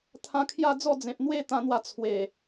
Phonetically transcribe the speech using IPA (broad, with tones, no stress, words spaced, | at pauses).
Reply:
t̪ʰã˧kʰja˥˧d͡zɔ˥˧ d͡zẽ˨p̚n̪we˥˧ t̪ã˧n̪wa˧ t͡sʰwe˨˩